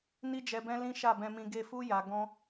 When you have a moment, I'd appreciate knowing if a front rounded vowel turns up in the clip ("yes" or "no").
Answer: no